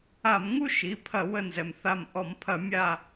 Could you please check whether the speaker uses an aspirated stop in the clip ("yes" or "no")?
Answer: yes